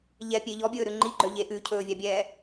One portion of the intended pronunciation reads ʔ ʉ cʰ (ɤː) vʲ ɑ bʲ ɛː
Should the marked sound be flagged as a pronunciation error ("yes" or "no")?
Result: yes